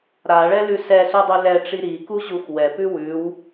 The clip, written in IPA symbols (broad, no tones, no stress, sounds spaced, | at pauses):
ɾ a ɭ ɛ l ʉ s ɛ s u dˤ ʉ l ɛ ʈ͡ʂ i ɾ i k u ʑ u x w ɛ p ʉ w ʉ w